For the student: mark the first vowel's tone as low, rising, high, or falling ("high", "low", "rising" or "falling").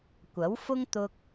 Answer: rising